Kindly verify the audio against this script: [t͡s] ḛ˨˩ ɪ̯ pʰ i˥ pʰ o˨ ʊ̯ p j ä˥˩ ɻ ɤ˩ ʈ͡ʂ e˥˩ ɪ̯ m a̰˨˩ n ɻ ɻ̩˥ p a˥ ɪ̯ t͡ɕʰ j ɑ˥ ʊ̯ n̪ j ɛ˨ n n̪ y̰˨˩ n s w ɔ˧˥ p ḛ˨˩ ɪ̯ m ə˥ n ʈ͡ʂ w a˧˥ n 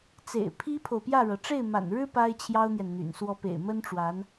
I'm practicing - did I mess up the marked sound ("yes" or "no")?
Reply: no